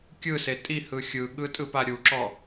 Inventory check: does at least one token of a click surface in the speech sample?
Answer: yes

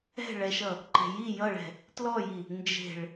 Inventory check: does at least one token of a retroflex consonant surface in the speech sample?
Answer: yes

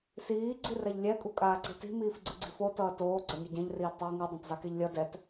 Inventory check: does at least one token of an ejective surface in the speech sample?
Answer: yes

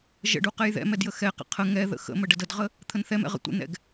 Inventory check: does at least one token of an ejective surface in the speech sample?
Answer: no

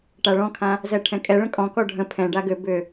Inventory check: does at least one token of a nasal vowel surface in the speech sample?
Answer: yes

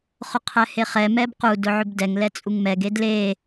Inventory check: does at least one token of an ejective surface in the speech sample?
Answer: yes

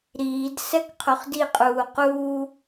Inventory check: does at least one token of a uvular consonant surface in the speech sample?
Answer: yes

